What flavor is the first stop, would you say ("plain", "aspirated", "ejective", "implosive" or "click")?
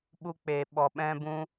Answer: implosive